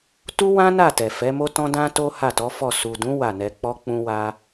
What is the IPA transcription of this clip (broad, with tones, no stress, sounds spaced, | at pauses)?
t u˦ w ã˦ n a˦˨ t ɛ˨ f ɛ˨˦ m o˦ t ɔ̃˦ d ã˦ t o˦ h a˦˨ t ɔ˨˦ f ɔ˦˨ s u˨ d ũ˨˦ w a˦˨ n ɛ˧ k͡p ɔ˦ k͡p ũ˦ w a˦